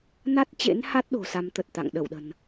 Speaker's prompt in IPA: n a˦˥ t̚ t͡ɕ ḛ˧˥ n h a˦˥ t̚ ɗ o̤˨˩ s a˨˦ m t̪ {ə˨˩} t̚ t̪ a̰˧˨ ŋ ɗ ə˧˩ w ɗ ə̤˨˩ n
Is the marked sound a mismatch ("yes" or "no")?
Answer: no